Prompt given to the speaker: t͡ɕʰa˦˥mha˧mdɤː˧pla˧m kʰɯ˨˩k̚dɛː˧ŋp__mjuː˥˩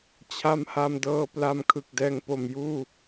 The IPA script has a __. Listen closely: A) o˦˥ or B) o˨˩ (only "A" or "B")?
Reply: B